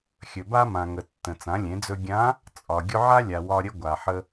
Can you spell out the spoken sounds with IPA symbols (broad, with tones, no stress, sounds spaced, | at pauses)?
xʲ ɵ˩ b a˧ m ã˩ ŋ ə˩ tː ə̃˩ t͡s ã˩˧ lʲ ẽ˩˧ d͡z ɵ˧ ɡʲ ã˧˥ | t͡sʼ ɒ˩ ɡʲ ʊ˧ ʕ a˥ lʲ a˩ w ɒ˧ ɾʲ ə˧ ɡʷ a˩ ħ ə˧